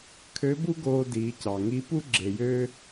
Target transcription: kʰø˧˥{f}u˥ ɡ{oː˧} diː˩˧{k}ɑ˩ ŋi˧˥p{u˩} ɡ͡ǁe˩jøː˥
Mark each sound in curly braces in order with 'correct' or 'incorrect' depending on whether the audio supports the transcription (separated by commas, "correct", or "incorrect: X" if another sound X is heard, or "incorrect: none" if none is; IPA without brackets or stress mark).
incorrect: b, correct, incorrect: c, incorrect: u˥